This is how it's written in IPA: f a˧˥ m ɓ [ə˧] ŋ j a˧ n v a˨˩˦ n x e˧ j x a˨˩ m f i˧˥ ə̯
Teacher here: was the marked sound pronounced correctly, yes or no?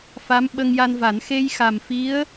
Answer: yes